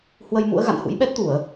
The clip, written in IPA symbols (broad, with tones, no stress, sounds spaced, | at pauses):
h w ə˧ j m ṵ˧˥ ə̯ ɣ a̰˧˨ n h ṵ˧˥ j ɓ ɛ˦˥ t̚ t̪ u˧˩˨ ə̯